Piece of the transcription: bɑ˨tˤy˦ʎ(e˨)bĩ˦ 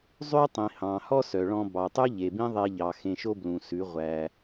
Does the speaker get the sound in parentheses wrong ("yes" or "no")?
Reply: no